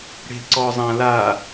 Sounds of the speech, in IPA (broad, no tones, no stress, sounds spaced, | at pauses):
ɽ e̤ ǀ ɔ zˤ ã l a